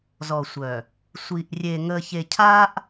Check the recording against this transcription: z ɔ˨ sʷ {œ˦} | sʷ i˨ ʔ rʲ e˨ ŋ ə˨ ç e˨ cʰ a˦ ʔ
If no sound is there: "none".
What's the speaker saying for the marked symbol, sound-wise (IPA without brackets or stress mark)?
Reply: œ˨